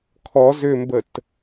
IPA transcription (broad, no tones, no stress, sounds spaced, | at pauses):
kʰ ɔ z ʏ m b ə t